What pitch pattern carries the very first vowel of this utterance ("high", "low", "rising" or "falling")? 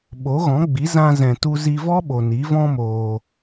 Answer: rising